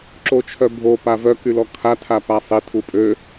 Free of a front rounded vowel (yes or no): no